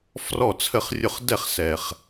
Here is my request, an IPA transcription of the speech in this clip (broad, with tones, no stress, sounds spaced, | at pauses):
f r ɔ˥˨ t͡sʰ ə˥˨ χ rʲ ʊ˦ χ d ɛ˥˨ χ s ɛ˨˩ χ